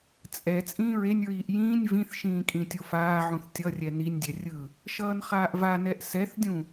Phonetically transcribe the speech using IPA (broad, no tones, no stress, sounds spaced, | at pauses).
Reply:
t͡sʼ ɛ t͡sʼ ĩː ɹ e nʲ ɹ iː ʔ j ĩː nʲ v ĩ θ ʃ ĩː kʼ ĩ tʲ o f aː ʕ ũ θ tʲ ʌ rʲ ɛ n i nʲ dʲ ɛ rʲ ɯ | ʃ ʌː n χ aː ʔ v a n ɛ ʔ s ɛ θ dʲ ũ